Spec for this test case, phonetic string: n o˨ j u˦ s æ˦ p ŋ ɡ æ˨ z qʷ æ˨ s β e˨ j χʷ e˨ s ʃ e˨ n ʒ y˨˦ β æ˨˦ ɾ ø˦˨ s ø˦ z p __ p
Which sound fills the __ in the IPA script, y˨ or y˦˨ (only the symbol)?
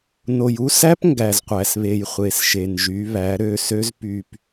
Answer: y˨